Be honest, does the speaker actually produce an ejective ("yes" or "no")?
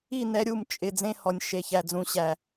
yes